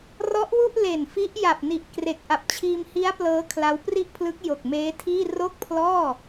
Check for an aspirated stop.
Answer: present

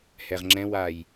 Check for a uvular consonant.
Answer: present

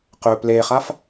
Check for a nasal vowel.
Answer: absent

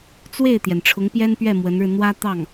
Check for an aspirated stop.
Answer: present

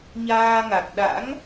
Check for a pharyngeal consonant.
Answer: absent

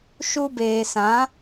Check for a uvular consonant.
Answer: absent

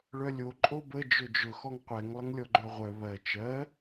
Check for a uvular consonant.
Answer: present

